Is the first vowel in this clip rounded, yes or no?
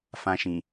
no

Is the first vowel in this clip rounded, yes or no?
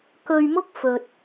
yes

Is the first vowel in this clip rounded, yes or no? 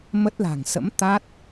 no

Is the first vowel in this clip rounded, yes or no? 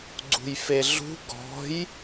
yes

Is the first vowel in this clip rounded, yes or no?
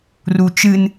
yes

